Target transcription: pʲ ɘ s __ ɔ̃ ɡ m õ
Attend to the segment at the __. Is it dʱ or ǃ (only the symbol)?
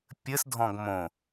dʱ